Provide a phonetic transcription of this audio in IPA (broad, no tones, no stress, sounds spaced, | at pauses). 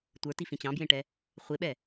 tʷ ə˞ t i f ĩ t͡ɕ ɑ̃ b j ẽ ʈ ɛ | χʷ e ɓ ɛ